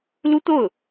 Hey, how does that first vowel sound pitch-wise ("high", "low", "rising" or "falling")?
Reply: high